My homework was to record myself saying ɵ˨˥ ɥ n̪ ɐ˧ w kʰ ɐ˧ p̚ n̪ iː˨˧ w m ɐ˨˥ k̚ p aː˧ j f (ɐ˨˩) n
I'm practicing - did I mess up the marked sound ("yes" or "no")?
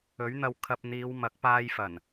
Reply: no